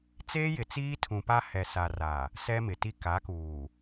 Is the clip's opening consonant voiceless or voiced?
voiceless